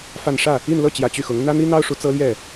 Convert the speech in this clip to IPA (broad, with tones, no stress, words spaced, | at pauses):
fa˥˧n ʂä˥˩ | i˥˧nlɤ˥˩t͡ɕjä˨˩ t͡ɕy˥˩xʊ˧˥ŋ n̪ä˥n̪i˥n̪ɑ˥ʊ̯ ʂu˧˥t͡sɤ˥ljɛ˥˩